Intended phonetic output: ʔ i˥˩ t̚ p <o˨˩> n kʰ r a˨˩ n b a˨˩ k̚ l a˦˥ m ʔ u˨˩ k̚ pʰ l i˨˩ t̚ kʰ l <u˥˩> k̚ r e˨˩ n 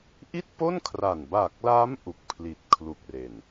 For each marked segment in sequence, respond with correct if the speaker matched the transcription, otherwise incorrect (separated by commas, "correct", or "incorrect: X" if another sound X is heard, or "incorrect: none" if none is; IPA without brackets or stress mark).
incorrect: o˥˩, incorrect: u˨˩